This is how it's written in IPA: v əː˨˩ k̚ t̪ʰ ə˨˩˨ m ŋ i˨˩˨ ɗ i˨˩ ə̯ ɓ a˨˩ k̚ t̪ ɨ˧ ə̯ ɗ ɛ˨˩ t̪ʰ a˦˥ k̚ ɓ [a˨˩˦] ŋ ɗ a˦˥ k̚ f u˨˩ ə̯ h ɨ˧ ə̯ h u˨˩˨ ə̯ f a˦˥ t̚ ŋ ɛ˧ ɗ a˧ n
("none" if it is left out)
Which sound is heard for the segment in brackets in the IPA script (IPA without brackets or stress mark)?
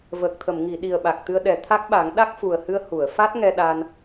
a˨˩˦